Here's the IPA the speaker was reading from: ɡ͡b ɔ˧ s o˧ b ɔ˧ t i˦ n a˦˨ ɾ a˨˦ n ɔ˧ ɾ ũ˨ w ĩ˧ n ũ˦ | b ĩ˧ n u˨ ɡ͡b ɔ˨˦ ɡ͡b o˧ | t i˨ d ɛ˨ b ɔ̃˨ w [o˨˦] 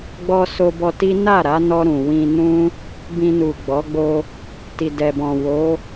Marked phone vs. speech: correct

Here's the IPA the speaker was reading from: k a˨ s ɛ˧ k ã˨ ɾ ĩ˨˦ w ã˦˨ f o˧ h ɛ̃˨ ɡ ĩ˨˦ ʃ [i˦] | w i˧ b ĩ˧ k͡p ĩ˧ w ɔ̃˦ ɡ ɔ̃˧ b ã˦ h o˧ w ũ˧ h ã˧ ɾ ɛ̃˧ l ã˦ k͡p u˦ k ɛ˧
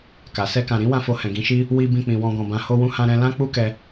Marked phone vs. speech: correct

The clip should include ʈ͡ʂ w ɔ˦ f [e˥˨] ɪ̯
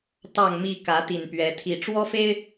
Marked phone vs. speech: incorrect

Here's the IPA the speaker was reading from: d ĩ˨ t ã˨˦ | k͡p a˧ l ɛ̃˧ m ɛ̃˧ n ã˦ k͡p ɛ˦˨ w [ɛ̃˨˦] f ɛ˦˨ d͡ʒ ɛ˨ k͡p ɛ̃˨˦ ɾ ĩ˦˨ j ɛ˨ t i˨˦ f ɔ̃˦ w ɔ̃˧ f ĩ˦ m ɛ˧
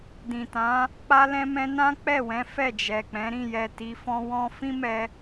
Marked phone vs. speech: correct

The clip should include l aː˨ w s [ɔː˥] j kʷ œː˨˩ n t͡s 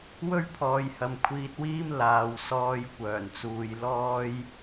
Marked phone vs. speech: incorrect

